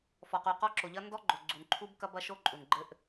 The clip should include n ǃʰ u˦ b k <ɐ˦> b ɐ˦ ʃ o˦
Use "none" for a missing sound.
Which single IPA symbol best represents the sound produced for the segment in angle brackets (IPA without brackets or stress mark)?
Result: ɐ˦